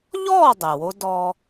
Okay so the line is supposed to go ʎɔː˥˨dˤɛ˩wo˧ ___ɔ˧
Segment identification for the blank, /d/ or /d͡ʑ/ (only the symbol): d